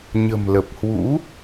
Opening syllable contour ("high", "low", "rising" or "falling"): low